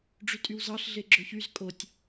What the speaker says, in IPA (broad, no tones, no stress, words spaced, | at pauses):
ɖ͡ʐytʼywzɑɬ ɮeɡ͡ǁɵçyz kʼotʲ